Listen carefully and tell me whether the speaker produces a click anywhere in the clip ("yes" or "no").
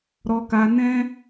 no